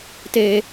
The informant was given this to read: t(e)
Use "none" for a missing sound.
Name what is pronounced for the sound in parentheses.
e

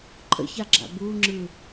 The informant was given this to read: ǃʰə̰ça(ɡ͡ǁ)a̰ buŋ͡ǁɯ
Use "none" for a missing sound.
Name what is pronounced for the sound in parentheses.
ɡ͡ǁ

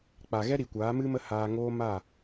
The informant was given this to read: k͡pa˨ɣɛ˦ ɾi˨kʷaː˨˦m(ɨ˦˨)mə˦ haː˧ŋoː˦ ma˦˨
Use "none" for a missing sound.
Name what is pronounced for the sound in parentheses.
ɨ˦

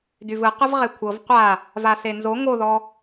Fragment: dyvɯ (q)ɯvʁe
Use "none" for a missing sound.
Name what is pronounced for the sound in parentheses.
q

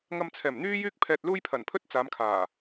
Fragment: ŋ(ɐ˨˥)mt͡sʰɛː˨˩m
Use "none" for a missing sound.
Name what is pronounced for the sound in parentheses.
ɐ˧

